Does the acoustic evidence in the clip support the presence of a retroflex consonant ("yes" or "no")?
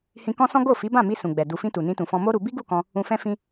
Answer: no